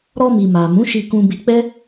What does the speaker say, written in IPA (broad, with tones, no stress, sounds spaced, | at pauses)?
ɾ ɔ˧ m i˨ m a˨ m ũ˨˦ ʃ i˧ k ũ˧ b i˧ k͡p ɛ˦